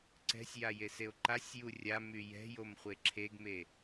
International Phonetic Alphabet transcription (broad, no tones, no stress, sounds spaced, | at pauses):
ǀ ɛ̤ sʲ j a j e s e o̯ ǃ a sʲ j u rʲ a m y j ɛ̤ j o m χʷ e ǁʰ e ɡ m e